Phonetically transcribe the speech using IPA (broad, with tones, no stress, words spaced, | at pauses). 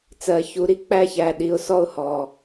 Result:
t͡sɜ˨ çu˨ɾi˦ k͡pæ˦çæ˨ ɗi˨ʊ̯sɔ˦ʊ̯hɔ˨